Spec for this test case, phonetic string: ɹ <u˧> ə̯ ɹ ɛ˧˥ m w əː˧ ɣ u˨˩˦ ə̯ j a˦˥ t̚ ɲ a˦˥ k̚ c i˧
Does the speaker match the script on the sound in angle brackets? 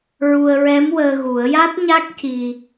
yes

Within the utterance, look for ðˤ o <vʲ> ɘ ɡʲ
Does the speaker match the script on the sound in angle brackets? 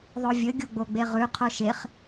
yes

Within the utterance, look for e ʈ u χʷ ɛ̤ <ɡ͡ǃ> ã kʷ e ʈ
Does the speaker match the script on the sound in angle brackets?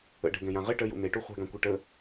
no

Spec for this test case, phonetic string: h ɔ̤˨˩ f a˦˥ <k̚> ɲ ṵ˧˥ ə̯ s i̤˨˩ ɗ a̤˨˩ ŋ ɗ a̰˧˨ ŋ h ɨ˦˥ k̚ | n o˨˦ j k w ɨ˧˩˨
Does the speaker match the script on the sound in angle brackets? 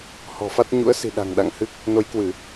no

